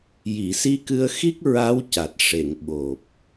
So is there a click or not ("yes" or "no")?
no